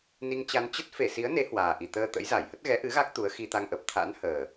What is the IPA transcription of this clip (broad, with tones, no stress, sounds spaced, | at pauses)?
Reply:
n i˧ ŋ t͡ɕ a˧ n t͡ɕ ə˦˥ t̚ f e˧˩ s i˨˦ ə̯ n e˨˦ h w aː˨˩ ʔ i˨˩ t̪ əː˧ t̪ ə̰˧˥ j z a˧˩ j h ə˦˥ t̚ ɣ ɛ˨˦ ʔ ɨ˨˦ ɣ a˦˥ k̚ t̪ u˨˦ ə̯ x i˧ t̪ a˧ ŋ ʔ ə˨˩ p̚ t̪ʰ a̰˧˥ n h əː˨˩